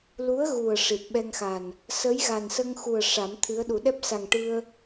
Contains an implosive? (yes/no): yes